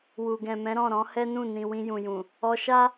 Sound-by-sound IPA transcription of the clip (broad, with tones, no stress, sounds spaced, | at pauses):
w u˨ ɡ ɛ̃˨ m ɛ̃˨˦ ɾ ɔ̃˦˨ ɾ ɔ̃˨˦ h ɛ˦ n ũ˦˨ n ĩ˨ w ĩ˧ j ũ˨ j ũ˨ | ɔ˧ ʃ a˦